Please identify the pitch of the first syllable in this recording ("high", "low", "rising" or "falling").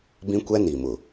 high